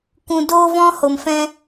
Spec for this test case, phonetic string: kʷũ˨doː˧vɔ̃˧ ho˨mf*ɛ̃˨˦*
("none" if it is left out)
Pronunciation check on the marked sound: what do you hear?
ɛ̃˧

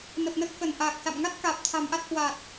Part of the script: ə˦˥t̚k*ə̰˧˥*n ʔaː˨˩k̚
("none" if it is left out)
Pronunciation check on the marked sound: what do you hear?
ə˧˩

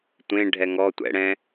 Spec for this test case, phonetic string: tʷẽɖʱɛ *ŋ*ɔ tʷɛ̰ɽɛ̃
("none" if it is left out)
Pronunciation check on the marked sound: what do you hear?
ŋ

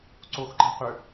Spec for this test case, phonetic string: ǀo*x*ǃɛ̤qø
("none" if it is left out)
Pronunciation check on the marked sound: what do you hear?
x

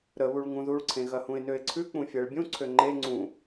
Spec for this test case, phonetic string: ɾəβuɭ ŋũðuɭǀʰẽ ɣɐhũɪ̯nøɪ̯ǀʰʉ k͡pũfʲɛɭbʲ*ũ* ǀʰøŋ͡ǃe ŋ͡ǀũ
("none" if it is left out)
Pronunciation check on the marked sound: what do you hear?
ũ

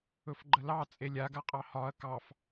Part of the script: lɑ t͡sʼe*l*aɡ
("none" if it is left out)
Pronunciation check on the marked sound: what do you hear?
lʲ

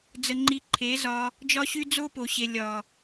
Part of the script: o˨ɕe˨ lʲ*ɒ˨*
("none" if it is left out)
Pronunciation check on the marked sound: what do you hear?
ɒ˨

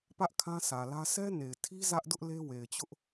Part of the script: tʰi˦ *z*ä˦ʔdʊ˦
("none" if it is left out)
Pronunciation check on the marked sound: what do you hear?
z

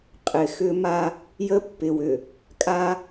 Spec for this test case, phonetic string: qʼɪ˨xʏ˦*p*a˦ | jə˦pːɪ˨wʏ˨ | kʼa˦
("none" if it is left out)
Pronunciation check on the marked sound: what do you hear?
m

